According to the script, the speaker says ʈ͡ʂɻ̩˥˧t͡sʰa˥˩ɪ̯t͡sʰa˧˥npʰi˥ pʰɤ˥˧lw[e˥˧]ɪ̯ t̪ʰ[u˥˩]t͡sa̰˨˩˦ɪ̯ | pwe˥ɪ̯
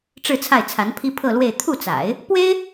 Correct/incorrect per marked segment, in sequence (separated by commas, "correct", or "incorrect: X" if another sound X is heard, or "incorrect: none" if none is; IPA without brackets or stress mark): correct, correct